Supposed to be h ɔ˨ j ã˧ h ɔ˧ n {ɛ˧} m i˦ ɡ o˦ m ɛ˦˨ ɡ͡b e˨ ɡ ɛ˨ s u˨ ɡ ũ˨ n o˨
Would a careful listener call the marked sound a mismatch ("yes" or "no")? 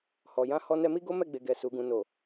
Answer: no